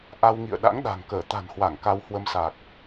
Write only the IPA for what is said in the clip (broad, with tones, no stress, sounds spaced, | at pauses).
ʔ a˧ w ŋ ḭ˧˨ ə̯ ɗ a̰˧˥ ŋ ɗ a̤˨˩ ŋ k əː˧˩ t̪ a̤˨˩ n h w a˧˩ ŋ k a˧ w h w ə˧ m s a˨˩ k̚